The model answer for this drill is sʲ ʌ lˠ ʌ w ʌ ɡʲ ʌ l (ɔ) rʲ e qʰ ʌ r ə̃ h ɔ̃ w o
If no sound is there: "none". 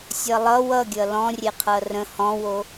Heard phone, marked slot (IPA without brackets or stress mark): ɔ̃